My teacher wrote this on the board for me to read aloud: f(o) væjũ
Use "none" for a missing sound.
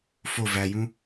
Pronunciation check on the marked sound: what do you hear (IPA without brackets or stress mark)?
o